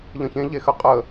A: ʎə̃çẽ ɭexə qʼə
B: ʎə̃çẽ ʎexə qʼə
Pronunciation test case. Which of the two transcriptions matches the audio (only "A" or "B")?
B